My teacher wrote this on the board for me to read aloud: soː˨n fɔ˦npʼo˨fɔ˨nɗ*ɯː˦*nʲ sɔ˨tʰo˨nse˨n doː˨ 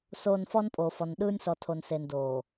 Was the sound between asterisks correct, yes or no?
yes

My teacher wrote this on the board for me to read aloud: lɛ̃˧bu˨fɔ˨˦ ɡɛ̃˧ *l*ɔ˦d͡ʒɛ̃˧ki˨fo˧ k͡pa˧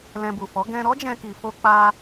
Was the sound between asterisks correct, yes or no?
no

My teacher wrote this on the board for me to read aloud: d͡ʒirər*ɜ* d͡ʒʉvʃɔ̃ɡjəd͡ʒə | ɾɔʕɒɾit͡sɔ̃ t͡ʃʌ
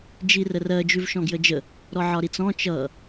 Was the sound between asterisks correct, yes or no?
yes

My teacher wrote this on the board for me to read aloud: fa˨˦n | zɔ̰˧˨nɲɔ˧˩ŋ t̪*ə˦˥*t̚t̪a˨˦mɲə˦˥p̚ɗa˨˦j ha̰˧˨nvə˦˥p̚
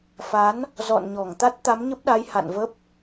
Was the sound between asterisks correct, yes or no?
no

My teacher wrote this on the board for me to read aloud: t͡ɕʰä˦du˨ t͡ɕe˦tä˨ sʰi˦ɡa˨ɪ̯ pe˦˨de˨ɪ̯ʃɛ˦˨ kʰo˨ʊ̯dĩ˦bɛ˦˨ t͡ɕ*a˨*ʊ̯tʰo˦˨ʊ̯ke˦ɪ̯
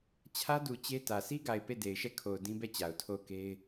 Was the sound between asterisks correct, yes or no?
yes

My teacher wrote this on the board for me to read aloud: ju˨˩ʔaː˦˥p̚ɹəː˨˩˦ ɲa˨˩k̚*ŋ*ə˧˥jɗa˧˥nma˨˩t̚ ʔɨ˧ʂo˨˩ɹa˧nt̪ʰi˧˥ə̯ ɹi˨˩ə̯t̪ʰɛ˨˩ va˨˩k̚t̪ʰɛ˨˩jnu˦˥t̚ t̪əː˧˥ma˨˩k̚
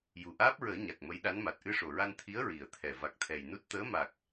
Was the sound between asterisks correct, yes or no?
no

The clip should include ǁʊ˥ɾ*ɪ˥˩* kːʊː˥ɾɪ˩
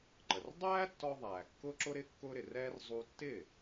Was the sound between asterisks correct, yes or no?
no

